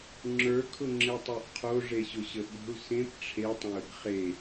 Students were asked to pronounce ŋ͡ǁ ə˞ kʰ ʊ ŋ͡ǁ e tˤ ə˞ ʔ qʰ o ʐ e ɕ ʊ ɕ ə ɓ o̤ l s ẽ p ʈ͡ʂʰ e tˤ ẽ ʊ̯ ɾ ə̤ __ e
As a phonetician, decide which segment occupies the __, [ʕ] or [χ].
χ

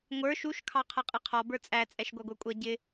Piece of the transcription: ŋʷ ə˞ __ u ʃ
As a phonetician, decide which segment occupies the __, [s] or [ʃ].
ʃ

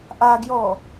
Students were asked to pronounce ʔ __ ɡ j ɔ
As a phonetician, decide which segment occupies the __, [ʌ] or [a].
a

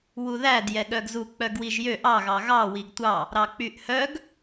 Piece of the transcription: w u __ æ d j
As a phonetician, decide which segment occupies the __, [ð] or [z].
ð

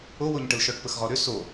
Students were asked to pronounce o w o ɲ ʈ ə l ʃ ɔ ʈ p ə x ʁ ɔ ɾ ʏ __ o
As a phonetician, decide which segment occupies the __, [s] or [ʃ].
s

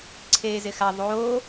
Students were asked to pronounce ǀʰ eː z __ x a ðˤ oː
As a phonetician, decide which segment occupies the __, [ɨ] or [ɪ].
ɪ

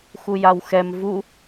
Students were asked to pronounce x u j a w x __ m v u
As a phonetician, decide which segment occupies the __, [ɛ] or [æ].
ɛ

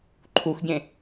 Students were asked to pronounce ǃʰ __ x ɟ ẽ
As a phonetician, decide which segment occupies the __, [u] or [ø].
u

